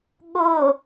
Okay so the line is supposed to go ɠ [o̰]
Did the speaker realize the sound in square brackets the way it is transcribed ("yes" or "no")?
no